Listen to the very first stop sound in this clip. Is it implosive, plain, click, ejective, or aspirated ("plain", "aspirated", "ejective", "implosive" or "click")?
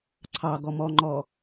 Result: click